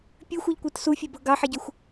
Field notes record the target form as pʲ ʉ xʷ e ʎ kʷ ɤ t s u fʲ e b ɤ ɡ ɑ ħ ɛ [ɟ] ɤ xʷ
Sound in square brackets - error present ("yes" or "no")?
no